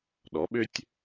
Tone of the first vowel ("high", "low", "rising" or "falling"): rising